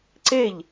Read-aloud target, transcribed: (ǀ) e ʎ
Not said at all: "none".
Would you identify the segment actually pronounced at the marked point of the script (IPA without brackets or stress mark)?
ǀ